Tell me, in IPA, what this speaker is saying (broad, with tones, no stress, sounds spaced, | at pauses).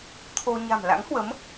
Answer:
t̪ʰ o˧ ɲ a̤˨˩ m l a̰˧˥ ŋ h w ə˨˦ m